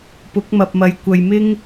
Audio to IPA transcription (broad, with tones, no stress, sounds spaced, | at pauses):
p ʊ˨˥ k̚ m ɐ˨ p̚ m ɐ˨ j kʷ ɐ˨ j m ɪ˥ ŋ